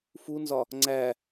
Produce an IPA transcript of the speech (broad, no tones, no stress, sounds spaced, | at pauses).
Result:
f u n z ɒ | ŋ͡ǀ æ